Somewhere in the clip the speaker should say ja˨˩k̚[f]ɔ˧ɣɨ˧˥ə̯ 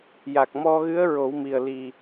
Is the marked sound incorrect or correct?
incorrect